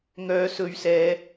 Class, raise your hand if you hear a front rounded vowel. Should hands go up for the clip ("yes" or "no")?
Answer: yes